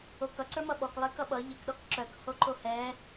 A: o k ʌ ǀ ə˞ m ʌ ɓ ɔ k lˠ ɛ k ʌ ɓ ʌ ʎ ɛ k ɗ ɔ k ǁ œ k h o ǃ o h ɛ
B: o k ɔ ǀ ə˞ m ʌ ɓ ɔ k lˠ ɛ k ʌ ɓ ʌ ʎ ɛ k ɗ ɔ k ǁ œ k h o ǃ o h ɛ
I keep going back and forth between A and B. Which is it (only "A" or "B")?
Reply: A